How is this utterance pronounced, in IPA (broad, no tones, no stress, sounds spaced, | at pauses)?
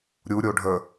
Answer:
ɾʲ u ɾʲ o ɖʱ ə